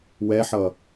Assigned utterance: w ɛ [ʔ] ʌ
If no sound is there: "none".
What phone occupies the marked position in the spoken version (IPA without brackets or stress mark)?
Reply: ħ